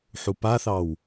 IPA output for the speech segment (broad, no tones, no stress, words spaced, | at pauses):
ħupaθɑw